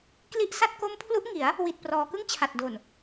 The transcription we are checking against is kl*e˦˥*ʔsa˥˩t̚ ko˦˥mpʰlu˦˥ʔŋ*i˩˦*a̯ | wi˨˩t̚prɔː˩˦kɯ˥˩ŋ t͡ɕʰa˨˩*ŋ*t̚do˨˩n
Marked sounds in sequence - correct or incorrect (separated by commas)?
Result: incorrect, correct, incorrect